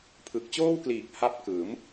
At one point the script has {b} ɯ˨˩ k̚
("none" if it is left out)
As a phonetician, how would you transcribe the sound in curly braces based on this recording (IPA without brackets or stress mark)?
pʰ